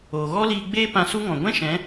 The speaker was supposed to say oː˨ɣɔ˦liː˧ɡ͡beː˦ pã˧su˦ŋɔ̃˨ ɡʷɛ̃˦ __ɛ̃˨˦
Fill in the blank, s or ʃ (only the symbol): ʃ